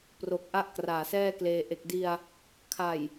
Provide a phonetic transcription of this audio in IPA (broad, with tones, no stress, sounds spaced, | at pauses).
p r o˨˩ k̚ ʔ a˥˩ ʔ k r aː˨˩ s ɛː˥˩ k l eː˧ ʔ e˨˩ k̚ d i˧ a̯ | kʰ a˨˩ j